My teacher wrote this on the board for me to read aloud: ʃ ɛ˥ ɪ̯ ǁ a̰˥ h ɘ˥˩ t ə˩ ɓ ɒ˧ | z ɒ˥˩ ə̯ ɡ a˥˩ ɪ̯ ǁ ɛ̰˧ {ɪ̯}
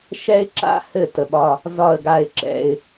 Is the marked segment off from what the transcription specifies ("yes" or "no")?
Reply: no